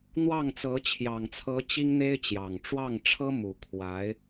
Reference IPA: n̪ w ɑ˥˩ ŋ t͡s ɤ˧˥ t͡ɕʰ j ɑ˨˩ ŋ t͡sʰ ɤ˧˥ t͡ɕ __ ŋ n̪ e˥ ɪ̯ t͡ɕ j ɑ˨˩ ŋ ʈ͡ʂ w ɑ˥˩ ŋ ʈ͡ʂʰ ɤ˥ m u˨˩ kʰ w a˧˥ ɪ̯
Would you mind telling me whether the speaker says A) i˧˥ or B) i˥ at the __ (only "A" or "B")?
B